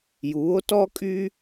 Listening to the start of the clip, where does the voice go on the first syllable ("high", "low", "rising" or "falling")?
rising